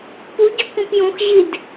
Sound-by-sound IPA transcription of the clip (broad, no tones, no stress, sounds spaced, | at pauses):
p u ɟ o k ũ p j õ x ʑ i d